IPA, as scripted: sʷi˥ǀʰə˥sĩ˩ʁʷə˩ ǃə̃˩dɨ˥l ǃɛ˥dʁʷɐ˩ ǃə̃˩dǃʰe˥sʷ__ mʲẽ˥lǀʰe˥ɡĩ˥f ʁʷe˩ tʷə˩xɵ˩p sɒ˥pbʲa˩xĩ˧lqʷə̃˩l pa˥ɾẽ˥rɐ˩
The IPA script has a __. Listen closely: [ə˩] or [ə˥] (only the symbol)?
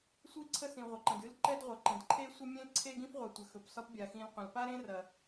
ə˥